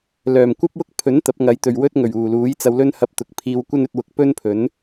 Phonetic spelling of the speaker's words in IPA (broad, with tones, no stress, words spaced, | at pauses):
lœː˨˩mkʷɐ˥p̚wʊ˥k̚ pʰɵ˨˥n t̪ɐ˨˥p̚ ŋɐ˨˥jt̪ɵ˨ɥ wɵ˥t̚ ŋɵ˨˩ɥuː˨˩luː˨˥j t͡sɐ˧wlɵ˥n hɐ˧p̚t̪ʊ˨˥k̚ pʰiː˧wkʷɐ˥nɵ˨˥t̚ wʊ˨k̚pɵ˥npʰɵ˨˥n